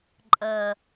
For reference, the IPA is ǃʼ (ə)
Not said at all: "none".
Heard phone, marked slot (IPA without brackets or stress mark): ə